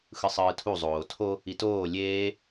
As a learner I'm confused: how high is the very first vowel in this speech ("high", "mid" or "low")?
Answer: high